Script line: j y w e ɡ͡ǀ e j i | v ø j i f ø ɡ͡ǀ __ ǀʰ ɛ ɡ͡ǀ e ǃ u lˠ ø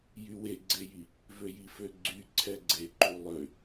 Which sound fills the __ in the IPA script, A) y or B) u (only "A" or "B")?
A